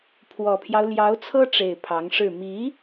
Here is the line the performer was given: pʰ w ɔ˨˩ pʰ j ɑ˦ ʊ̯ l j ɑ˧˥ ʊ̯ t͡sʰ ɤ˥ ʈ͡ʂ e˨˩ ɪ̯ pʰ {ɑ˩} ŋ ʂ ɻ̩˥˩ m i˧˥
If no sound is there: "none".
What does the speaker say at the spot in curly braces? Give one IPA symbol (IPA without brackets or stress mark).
ɑ˧˥